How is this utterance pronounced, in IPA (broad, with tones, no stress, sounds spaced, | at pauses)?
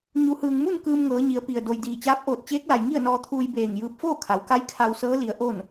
ɲ u˩˧ h ɯː˩ ŋ m u˥˨ n k ɯː˧ m ŋ ɤː˩˧ ɲ i˩˧ ə̯ p i˩ ə̯ d o˩ j d iː˧˩ t͡ɕ aː˧˥ p̚ ʔ oː˧˩ t̚ t͡ɕ eː˧˥ k̚ l a˩ j ŋ i˥˨ ə̯ n ɔː˧ t̪ʰ uː˧ j b eː˧˩ ŋ j ɯː˧ p̚ f oː˥˨ kʰ a˩˧ w k a˧˥ j kʰ a˧ w s ɤː˧˥ l i˩˧ ə̯ ʔ o˥˨ n